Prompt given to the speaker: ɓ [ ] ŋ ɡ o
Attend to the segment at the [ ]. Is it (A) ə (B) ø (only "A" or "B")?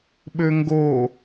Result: B